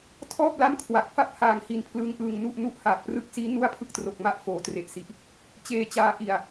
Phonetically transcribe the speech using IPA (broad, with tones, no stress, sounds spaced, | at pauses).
tʰ ɔː˥˩ p̚ l a˥˩ m kʰ w a˨˩ k̚ f a˥˩ p̚ h aː˨˩ ŋ h i˨˩ n pʰ l ɯː˦˥ ŋ ʔ ɯː˧ ŋ n u˥˩ ʔ n u˥˩ ʔ h aː˨˩ k̚ p r ɯ˦˥ k̚ s iː˦˥ n u˥˩ a̯ pʰ ɯ˥˩ k̚ t r o˨˩ k̚ m a˦˥ ʔ f oː˩˦ t r e˨˩ ʔ s i˨˩ ʔ | t͡ɕ eː˧ t͡ɕ aː˧ ʔ i˨˩ a̯